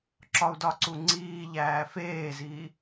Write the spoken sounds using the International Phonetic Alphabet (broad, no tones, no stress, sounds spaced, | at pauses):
ǁ ɒ u̯ d ɒ ǀ u ŋ͡ǀ iː ʎ æː f eː z iː